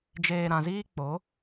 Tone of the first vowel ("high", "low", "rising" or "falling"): low